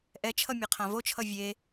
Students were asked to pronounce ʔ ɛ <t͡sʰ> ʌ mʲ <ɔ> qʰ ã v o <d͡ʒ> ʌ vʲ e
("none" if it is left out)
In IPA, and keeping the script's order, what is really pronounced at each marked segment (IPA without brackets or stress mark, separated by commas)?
t͡ʃʰ, ʌ, t͡ʃʰ